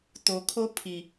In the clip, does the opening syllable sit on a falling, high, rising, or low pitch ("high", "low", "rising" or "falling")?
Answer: low